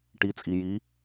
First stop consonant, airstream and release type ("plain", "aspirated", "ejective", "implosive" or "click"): plain